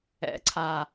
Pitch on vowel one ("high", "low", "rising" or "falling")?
rising